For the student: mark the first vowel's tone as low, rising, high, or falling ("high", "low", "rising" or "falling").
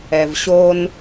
low